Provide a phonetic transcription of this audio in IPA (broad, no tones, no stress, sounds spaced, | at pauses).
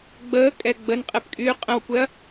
ɡ͡b əː kʼ ɛ ɡ͡b ə n qʼ e p kʼ yː qʼ ə̃ w kʷ ɛ ɐ̯